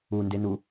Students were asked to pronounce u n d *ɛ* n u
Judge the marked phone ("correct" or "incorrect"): incorrect